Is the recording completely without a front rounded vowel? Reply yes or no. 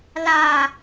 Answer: yes